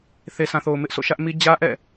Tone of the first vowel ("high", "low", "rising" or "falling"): low